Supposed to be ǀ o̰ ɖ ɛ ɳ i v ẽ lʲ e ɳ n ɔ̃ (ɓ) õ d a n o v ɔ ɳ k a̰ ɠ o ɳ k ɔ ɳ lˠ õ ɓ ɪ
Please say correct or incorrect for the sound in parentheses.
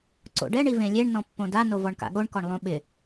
incorrect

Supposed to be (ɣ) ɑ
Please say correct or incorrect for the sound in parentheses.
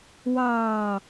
incorrect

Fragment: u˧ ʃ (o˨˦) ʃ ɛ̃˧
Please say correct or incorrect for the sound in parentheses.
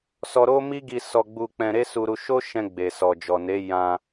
incorrect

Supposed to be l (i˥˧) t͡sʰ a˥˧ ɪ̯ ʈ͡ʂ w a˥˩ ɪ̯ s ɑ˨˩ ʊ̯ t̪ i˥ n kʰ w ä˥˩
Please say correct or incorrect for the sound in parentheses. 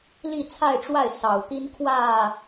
correct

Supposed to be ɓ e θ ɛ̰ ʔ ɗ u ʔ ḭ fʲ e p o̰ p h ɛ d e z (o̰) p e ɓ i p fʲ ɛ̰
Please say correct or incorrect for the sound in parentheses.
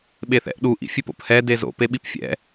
correct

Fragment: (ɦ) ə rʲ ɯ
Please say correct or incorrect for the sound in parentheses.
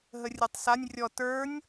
correct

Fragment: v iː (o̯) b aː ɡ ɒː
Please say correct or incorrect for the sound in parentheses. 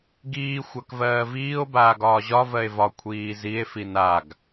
correct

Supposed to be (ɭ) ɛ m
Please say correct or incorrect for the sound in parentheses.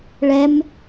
correct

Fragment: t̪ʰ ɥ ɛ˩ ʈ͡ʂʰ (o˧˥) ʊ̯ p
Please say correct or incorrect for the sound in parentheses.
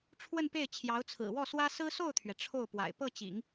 incorrect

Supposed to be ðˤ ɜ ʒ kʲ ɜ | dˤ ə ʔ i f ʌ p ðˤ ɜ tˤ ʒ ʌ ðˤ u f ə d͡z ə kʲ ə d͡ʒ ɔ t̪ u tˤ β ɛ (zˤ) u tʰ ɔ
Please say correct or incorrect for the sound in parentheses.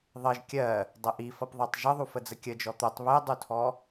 incorrect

